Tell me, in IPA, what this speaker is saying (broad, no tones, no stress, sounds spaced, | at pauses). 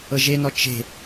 ɤ ʒ e n ɔ t͡ʃ e̤